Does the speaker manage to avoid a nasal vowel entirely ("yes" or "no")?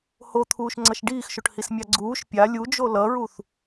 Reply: yes